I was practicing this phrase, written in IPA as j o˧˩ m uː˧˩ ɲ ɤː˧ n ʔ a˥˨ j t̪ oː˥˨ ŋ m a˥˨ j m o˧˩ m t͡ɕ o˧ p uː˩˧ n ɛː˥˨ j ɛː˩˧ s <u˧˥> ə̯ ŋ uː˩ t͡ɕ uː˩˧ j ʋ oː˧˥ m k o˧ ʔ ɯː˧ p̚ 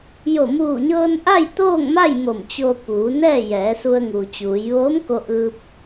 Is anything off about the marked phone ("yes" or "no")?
yes